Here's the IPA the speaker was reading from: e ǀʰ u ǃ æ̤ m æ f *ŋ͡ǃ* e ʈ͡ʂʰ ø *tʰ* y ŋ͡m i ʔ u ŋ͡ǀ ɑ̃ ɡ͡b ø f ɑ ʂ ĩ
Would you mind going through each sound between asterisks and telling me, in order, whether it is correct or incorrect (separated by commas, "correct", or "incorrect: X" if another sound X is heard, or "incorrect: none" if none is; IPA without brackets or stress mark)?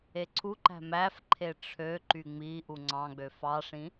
incorrect: ǃʰ, incorrect: ǃ